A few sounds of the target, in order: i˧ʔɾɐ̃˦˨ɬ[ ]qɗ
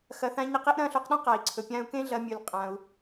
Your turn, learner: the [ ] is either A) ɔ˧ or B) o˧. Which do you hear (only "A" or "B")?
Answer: B